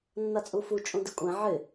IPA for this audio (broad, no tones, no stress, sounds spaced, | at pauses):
nː a t͡sʼ u f u t͡ʃʼ ũ d ɪ kʷʼ ɛ̃ ʕ ɪ